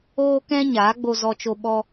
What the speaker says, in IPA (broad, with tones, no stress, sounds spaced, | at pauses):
oː˦ k ɛ̃˦ ɲ aː˨˦ ɡ͡b o˧ z ɔ˧ t͡ʃ o˧ ɓ ɔ˧